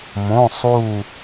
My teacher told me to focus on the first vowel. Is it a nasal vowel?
yes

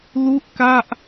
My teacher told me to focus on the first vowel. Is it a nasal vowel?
no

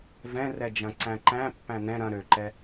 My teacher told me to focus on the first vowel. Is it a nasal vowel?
yes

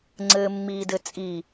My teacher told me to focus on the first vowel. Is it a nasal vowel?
no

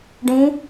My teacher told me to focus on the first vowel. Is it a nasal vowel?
yes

